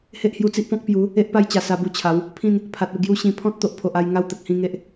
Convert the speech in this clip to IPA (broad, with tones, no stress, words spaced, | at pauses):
he˦ʔhju˧t͡si˦ʔpɔ̃˦k̚ pju˨˦ | e˦ʔpa˥˧jt͡ɕa˨˩ sa˧bu˧ t͡ɕʰa˨˦w | pʰĩ˥˧n | pʰa˨t̚u˧ɡju˦ɕĩ˧ pʰɔ̃˦t̚t̪o˨ʔpʰo˨ʔ a˥˧j ŋa˦wt̪ə˨k̚ hĩ˥˧ŋe˦ʔ